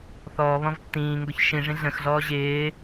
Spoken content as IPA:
θ ɔː β ɔ̃ v tː ĩː ŋ ɡ o ç ʃ ĩ ʐ ĩ ɮ ə̃ x ɮ ɔː ʑ ɪː

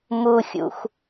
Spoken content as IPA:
m u xʲ ṵ xʷ

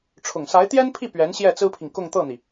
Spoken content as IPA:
ʈ͡ʂʰ ʊ˨˩ ŋ s a˧˥ ɪ̯ t̪ j ɛ˥ n pʰ i˥˩ p ɥ ɛ˧˥ n ɕ j ɛ˥˩ t͡s ɹ̩˥ pʰ i˨ ŋ k ʊ˥˧ ŋ t̪ ɤ˥˩ n̪ i˩

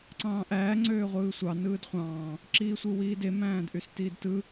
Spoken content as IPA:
ǀ ɑ̃ː ʔ æː ŋ͡ǀ øː ʁʷ ɯː sʷ ɑ n ɯː d χʷ ɑ̃ː | ǁ iː sʷ ɯ w iː d e m æ̃ː d ʔ y s t iː d t ɯ

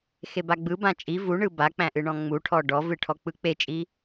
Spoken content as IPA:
x e b a ɡ͡b ɯ b ã t͡ʃʼ i v u ɳ ɯ b a k͡p æ̃ ʔ ɨ ɳ ɔ̃ ŋ͡m u ʈʰ ɔ ɖ ɔ v ɨ ʈʰ ɔ k͡p ɯ k͡p e t͡ʃʼ i

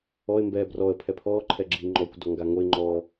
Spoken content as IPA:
ɔ ɪ̯ m b ɛː b r ɔ ə̯ pʰ ɛ pʰ ɔː ǃʰ ɛ ɡ͡ǁ iː ŋ͡ǃ ɔː kʷ d ɔ ŋ ɡ a ŋ o ɪ̯ ŋ͡ǃ ɔ

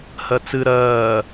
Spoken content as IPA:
h ɜ t͡s ɨ ɾ ɜː

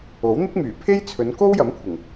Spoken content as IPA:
o˨˥ w n̪ ɪ˥ k̚ m yː˨˩ pʰ e˥ j t͡sʰ ɵ˨˧ n k o˥ w j ɐ˨˥ m kʷʰ ɪ˨˩ ŋ

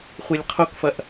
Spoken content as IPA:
χʷ e lʲ qʰ o k f ɐ ʔ

